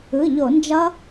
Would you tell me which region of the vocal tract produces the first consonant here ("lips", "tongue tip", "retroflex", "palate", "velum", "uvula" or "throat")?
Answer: palate